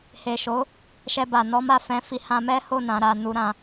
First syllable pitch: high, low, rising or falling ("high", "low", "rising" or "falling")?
low